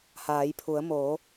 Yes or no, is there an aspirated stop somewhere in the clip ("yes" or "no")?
yes